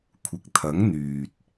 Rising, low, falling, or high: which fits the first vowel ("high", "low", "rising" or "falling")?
low